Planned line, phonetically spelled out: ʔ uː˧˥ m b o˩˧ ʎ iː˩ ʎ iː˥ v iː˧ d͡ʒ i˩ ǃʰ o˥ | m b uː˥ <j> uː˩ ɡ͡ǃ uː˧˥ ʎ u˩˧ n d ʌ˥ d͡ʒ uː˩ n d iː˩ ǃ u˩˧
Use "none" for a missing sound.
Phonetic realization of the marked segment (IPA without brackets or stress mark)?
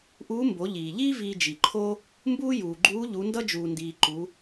j